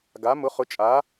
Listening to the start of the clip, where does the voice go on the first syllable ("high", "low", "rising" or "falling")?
rising